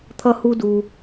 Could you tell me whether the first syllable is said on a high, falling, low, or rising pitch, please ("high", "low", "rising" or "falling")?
high